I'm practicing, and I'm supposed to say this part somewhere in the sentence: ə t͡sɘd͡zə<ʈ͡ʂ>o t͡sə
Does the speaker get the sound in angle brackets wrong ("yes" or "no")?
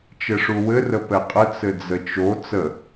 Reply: yes